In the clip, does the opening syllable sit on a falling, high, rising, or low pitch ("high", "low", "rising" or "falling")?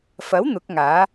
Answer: rising